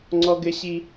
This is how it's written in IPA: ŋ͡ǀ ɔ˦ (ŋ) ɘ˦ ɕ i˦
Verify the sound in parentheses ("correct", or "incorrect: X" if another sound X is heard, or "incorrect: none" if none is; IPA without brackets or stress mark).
incorrect: ɡ